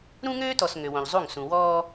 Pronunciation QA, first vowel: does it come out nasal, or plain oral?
nasal